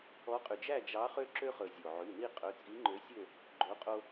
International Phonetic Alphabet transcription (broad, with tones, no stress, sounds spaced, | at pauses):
ɔ˨˥ qʼ y˩ d͡ʒ æ˥˨ d͡ʒ ɑ˨˥ χ ø˦ ǁ ø˦ χ ɵ˩ zʲ o˩ ʕ y˩˧˩ n i˥˨ qʼ ɵ˩˧˩ t͡sʼ i˨˥ ŋ͡ǃ ø˨˥ sʲ ø˥˨ | ɡ͡ǃ o˨˥ qʼ o˦